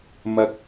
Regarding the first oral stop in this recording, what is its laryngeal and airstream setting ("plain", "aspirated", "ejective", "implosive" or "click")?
plain